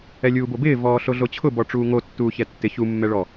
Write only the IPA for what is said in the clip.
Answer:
ɛlʲuːbobɪː vɔːɬoɮot͡ɕʰʊ bɔʈ͡ʂuːŋo tːuːçɛtːɪ çu mːɛɭɔ

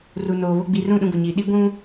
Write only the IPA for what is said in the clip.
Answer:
ru˨noː˨βʊ˦ ɡ͡bi˨rũ˦˨ ɗũ˦ɡʊ˨ɲiː˨ ɗi˦ ɡʷũ˦

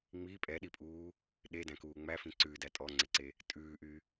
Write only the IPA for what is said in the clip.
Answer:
ŋ͡mi pʼɛɗipʼuː | ɗedæ̃kuː ŋ͡mæfĩ ǀʉdæ tʼɔŋ͡ǀeǀe | tʼʉːʔy

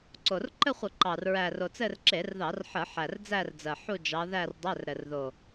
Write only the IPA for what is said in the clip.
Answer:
ǀo˨˩r ǃɘ˥˧χʷə˧˩˧ ǃɑ˨˩r ɹæ˨˩ro˨˩t͡sɘ˥˧r ǁe˧˩˧rðɑ˧˩˧rħə˧˩˧ ħæ˨˩rd͡zæ˥˧rd͡zɜ˨˩ ħu˥˧ d͡ʒɑ˧˥ ðæ˥˧rdˤæ˧˥˧r ɾɘ˨˩rðo˨˩

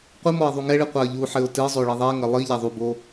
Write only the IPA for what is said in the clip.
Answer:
qʷɨmɔɪ̯ ðˤuŋɛɭi qʷaə̯ʎuħɘʊ̯ tɨzˤo ɭiðˤɛŋɐ lˠi ʎaðˤubo

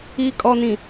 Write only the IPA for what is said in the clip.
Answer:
i˨ kʼɔ˨nĩ˨

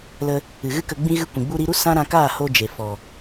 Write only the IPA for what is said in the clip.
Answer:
lə˧ | ɨ˨ɣɨ˦kə˧ ɡ͡bĩ˧ ɣɨ˧ kʷĩ˨ɡ͡bu˦ ɾi˧ɾu˦ sã˦ɾã˧kaː˦˨ ho˦ d͡ʒe˨ fɔ˨

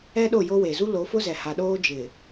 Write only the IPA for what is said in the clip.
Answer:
ɛ˦ɗo˦˨jo˦we˨ zu˦lo˨˦fʊ˦zɛ˨ ha˨ɗoː˦ d͡ʒɪ˨

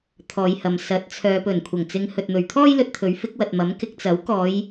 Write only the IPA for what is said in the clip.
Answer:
t̪ʰɔː˨˧jhɐ˨m sɐ˨˥t̚t͡sʰœː˨˧ pɵ˨˩nkʷʰɐ˨˩ŋt͡sɪ˨˧ŋ hɵ˨t̚n̪ɵ˨ɥt̪ʰɔː˥j lɵ˧t̚t̪ʰɵ˨˥ɥfɪ˨˥k̚wɐ˨t̚ mɐ˨˥mkɪ˧k̚ t͡sɐ˨˥w kɔː˨˧j

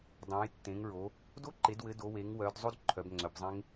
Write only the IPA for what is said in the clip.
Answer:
dˤõ˩˧jtːẽ˩˧ŋɹo˩˧ | do˦˥ǃe˩˧dwɘ˩˧ do˩˧we˩˧ŋwœ˩˧d zˤo˦˥d ǃʰœ˩˧bŋ͡ǀœ˩˧bzˤẽ˦˥ŋ

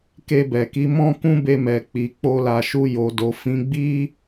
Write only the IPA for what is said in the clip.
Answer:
ke˧bɛ˨ki˨˦ mɔ̃˦kũ˦be˧mɛ˨ k͡pi˨k͡po˧la˨ʃu˧ jo˨do˨fĩ˨˦ɡ͡bi˦

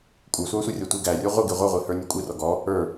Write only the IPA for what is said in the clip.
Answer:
kʷʼə˞sʷæsʷɛrʲɔ tʷiɡæ rʲə˞ʁʷɪ ɡiʁʷʌʁʷihə˞ nʲɔkʷʼirɔ ɡɔ | ə˞

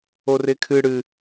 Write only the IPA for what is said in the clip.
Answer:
orɪkʰɨ ɽɨ

